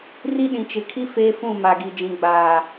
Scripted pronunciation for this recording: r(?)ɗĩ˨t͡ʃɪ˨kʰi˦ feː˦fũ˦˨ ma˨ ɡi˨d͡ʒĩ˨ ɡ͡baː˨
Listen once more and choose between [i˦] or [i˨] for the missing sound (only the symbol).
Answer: i˦